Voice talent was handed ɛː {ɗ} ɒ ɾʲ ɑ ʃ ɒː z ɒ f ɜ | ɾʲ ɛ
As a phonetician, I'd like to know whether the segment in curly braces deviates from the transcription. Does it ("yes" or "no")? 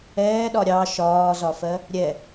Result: no